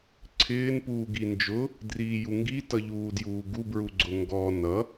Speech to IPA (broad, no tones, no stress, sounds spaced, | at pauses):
ǀʰ ɪː n p uː ɡ i n d͡ʒ ʊ | d r iː j u ŋ ɡ i t ʌ ʎ uː d j uː ɡ u b ɹ u ɡ͡ǀ ʊ ŋ ɡ ɔ n ʌ